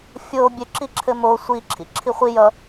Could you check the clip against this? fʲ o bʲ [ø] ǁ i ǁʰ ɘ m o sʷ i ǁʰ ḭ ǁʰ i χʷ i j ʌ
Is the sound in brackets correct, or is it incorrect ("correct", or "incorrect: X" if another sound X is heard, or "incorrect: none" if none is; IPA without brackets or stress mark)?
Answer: correct